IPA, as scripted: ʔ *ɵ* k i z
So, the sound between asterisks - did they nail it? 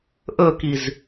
yes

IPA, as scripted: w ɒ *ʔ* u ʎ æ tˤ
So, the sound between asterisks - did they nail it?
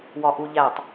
yes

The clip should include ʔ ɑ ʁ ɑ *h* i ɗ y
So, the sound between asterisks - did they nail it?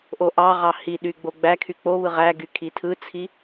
yes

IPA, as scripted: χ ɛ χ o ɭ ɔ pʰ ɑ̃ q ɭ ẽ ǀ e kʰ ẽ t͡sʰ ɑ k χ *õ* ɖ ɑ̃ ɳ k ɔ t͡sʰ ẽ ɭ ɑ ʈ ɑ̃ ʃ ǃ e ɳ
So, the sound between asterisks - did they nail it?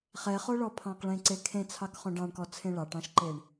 yes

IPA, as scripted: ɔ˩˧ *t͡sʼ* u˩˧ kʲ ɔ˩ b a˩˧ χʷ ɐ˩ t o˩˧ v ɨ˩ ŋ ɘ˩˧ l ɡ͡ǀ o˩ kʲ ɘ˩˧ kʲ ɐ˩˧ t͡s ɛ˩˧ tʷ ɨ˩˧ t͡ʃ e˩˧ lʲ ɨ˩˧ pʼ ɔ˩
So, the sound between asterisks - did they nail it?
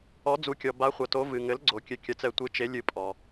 no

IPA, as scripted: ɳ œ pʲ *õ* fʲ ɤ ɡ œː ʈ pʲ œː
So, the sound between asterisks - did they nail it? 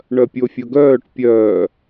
no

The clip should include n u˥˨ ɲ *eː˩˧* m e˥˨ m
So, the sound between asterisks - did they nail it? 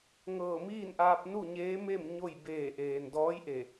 no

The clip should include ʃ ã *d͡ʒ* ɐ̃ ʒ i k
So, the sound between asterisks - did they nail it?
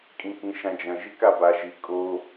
yes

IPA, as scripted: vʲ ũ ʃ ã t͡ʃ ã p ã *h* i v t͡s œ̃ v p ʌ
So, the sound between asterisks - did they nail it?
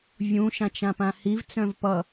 yes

